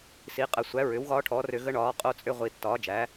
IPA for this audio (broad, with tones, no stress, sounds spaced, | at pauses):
s i˩˥ qʼ ə˧˩˧ sʷ æ˩˥ ɹ ʏ˩˥ w ɣ ɒː˦˥ ʈʰ ɔː˩˥ r ʏ˧˩˧ ɣ ə˦˥ ɳ ɒː˩˥ qʼ o˦˥ t͡sʼ ʏ˦˥ ʁʷ i˧˩˧ tː ɒː˩˥ d͡ʒ æ˩˥